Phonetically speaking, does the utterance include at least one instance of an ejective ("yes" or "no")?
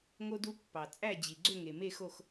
yes